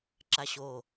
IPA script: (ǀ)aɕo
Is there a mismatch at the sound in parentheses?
yes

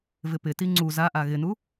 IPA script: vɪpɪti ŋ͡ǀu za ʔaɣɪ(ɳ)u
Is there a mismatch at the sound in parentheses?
yes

